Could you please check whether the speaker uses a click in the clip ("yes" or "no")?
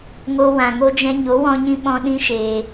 no